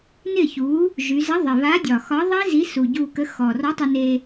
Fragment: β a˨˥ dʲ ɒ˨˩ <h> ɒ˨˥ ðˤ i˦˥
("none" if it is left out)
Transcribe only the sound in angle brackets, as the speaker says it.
x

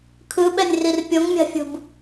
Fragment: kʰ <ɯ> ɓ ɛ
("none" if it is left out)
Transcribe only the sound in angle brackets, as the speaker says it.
ɯ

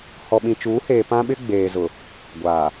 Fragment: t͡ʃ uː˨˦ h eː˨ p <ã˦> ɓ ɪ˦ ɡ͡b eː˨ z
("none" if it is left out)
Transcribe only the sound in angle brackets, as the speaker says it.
ã˦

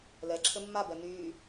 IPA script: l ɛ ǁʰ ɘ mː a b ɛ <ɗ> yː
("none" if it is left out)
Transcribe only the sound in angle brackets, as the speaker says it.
n̪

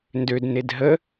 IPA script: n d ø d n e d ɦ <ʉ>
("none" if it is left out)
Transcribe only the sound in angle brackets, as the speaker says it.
ə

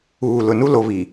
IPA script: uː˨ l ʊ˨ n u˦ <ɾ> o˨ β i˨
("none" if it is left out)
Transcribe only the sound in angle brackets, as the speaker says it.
l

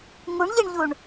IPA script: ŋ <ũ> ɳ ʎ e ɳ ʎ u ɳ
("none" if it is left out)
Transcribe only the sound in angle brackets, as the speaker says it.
u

